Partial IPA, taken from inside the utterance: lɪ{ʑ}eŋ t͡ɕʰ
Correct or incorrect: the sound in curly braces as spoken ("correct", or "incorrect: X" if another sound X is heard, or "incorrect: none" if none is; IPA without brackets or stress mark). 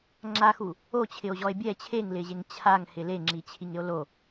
correct